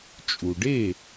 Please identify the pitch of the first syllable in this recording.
low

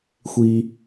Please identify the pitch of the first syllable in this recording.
high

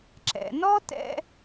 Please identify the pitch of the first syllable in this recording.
low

